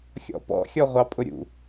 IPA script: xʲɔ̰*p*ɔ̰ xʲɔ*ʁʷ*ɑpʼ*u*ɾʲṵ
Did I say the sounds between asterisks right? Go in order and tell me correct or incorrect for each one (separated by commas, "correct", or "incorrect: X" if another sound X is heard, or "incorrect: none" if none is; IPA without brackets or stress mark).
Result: correct, correct, incorrect: ʊ